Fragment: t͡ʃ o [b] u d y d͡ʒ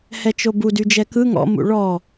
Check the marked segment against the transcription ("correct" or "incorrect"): correct